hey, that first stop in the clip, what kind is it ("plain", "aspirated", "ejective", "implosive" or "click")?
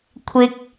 aspirated